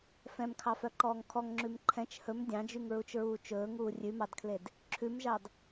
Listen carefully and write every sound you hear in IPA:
f ɛ̃ m kʰ ɑ f œ ǃ ɔː ŋ kʰ ɔ ŋ ŋ͡ǁ ʉ m ǃʰ ɛ̃ t͡ʃ h ɵ m dʲ ɑ̃ d͡ʒ y ŋ ɹ u t͡ʃ ɹ uː t͡ʃ ɵː ŋ uː rʲ ʉ m ɑ d kʰ l e d | ǁʰ ʉ m ʒ ɑ d

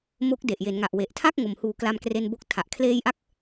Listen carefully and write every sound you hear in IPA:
m o˦˥ k̚ d e˨˩ ʔ j e˩˦ n ŋ a˨˩ ʔ w e˨˩ ʔ tʰ a˥˩ k̚ ŋ o˨˩ m h uː˨˩ k l a˧ m k r e˧ n b o˦˥ k̚ tʰ a˨˩ ʔ kʰ l eː˧ j ʔ a˦˥ k̚

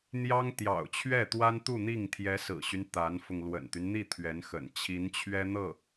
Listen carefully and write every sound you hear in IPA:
n̪ j ɑ˥ ŋ t̪ j ɑ̰˨˩ ʊ̯ t͡ɕʰ ɥ ɛ˥˩ t̪ w a˥ n t̪ u˥˧ n̪ i˥˩ ŋ t̪ʰ j ɛ˧˥ s ɹ̩˨˩ ɕ y˦ n t̪ a˧˥ n f ʊ˧ ŋ l w ə̰˨˩ n t̪ y˦ n n̪ i˥˩ t̪ʰ ɥ ɛ˧˥ n x ə̰˨˩ n t͡ɕʰ i˧˥ n t͡ɕʰ ɥ ɛ˥ n̪ ɤ˥˩

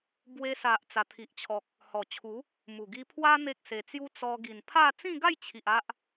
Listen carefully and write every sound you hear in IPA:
b w e˧ s a˨ ʔ t͡s a˨˩ t̪ʰ i˨ ʔ t͡ɕʰ ɔ˨ k̚ | h ɔ˨˩ t͡ɕʰ u˨˦ | m u˨˩ ɡ i˧ pʰ w a˦ n̪ e˦ k̚ s e˧ t͡s j u˦ t͡s ɔ˧ ɡ i˨˩ n pʰ a˥˧ t͡s ĩ˥˧ ɡ a˥˧ j t͡ɕʰ i˨ ʔ a˦ ʔ

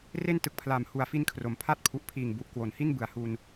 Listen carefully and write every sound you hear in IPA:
r e˥˩ n t ɯ˨˩ k̚ pʰ l aː˨˩ m h u˨˩ a̯ f i˧ n kʰ r o˩˦ m pʰ a˥˩ t̚ pʰ u˨˩ ʔ pʰ iː˨˩ ŋ b u˨˩ ʔ k w o˨˩ n h i˥˩ n b ɯ˨˩ a̯ h u˧ n

